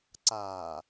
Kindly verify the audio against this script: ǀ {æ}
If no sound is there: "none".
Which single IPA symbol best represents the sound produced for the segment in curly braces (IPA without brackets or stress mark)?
a